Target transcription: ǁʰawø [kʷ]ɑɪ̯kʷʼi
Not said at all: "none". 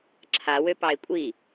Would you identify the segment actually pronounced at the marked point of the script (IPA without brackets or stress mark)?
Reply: p